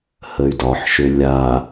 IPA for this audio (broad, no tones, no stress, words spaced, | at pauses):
həy̯dɒħʃø lʲa